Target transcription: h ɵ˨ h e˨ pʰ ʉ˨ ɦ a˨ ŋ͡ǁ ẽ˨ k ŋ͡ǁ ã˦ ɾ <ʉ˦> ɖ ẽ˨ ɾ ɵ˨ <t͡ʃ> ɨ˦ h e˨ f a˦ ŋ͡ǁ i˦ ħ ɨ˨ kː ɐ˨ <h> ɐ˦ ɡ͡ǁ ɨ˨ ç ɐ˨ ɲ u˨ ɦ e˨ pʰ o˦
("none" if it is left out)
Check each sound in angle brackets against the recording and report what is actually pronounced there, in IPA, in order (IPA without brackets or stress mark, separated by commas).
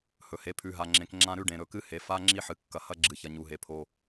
ʉ˦, k, h